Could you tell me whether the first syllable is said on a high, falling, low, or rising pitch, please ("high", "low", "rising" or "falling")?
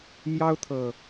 high